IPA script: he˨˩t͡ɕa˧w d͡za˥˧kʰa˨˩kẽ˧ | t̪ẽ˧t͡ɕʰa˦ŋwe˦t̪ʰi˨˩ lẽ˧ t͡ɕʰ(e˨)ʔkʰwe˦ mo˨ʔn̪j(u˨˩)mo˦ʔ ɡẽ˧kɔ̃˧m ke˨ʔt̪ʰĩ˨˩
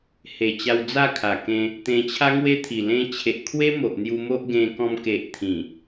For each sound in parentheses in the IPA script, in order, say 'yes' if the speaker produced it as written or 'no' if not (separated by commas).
yes, no